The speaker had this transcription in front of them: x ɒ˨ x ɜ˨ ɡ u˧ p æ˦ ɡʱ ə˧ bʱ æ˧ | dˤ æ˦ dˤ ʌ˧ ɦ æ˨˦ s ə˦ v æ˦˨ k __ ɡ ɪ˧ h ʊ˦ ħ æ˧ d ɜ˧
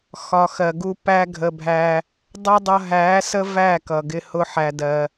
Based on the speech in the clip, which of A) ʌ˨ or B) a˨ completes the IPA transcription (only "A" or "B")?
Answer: A